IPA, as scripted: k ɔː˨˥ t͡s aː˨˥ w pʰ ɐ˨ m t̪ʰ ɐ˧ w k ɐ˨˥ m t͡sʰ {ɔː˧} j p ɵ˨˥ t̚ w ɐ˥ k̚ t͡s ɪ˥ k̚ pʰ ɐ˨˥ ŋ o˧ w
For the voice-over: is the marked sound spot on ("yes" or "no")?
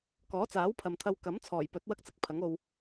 no